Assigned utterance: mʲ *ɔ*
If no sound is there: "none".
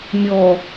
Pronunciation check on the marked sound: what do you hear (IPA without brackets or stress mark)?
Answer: ɔ